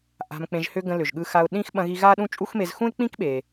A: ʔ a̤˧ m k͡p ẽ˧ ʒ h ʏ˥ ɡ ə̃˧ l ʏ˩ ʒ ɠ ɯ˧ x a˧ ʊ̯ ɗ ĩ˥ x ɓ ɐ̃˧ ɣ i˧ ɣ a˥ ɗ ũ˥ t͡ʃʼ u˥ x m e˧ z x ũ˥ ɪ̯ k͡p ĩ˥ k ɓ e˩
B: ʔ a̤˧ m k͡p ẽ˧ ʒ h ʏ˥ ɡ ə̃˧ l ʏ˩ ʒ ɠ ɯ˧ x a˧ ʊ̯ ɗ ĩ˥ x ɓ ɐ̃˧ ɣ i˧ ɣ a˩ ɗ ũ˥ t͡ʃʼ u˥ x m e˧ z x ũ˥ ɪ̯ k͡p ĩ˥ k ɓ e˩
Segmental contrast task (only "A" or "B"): A